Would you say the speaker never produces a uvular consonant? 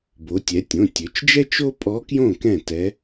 yes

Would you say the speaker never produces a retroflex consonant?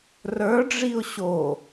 no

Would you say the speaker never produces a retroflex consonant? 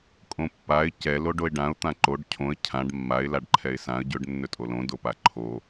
no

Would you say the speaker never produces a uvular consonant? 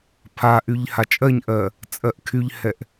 yes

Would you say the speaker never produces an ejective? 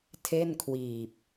yes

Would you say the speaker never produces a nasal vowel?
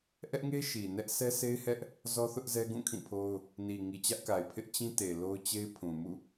no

